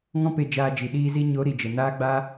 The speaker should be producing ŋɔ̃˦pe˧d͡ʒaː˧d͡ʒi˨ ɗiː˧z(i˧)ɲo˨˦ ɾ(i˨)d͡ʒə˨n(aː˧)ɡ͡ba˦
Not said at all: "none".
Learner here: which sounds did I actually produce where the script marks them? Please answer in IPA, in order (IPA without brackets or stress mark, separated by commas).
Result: i˧, i˨, aː˦